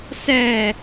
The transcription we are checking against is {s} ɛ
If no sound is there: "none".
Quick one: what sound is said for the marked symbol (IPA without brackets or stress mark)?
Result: s